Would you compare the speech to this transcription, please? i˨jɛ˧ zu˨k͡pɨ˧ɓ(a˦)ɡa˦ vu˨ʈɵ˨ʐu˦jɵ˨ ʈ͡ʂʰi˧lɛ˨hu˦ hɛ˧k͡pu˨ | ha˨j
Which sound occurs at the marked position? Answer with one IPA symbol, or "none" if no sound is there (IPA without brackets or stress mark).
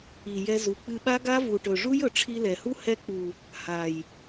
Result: a˦